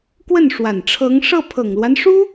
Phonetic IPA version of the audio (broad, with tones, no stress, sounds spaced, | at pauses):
k w ə˥˩ n ʂ w a˨˩ n ʈ͡ʂʰ ɤ˧˥ ŋ ʂ ɤ˥˩ pʰ ɤ˨˩ ŋ l w a˦ n ʂ u˥